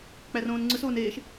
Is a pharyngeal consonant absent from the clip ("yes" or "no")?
yes